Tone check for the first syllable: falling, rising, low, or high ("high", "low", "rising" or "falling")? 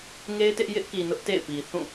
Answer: high